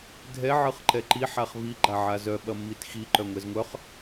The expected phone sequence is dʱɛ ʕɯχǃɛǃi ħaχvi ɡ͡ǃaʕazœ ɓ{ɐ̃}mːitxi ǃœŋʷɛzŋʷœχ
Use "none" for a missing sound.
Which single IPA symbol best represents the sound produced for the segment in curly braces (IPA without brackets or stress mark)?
ɐ